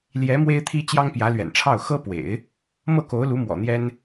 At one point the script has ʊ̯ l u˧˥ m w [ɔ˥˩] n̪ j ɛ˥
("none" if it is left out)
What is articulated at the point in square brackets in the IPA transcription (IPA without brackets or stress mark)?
ɔ̰˨˩